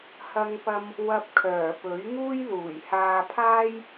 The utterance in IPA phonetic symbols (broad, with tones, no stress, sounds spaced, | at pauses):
h ɐ˥ ŋ p ɐ˥ m | w ɐ˧ p̚ kʰ œː˨˩ p ɵ˨˥ ɥ ŋ uː˥ j l uː˨˩ j h aː˧ pʰ aː˥ j